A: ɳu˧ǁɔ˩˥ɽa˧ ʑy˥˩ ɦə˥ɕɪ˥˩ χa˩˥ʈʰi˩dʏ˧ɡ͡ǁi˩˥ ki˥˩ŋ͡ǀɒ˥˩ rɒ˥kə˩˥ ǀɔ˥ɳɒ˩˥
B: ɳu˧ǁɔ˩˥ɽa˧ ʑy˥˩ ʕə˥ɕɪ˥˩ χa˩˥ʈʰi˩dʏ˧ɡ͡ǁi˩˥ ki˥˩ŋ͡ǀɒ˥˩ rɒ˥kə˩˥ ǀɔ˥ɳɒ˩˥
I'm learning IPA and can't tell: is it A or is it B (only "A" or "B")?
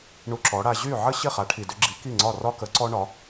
B